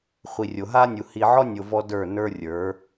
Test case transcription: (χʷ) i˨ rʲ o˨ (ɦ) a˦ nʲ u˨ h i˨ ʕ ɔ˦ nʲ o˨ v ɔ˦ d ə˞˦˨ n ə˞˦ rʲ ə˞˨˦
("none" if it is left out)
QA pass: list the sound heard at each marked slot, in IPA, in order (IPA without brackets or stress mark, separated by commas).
χʷ, ɦ